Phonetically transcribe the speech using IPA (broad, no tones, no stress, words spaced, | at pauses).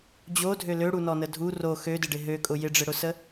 d͡ʑodʱø løɽunɔnə dʱu ro xødɪɖɪ ɦøkʼʊ jɪɖ͡ʐɪɽʊsə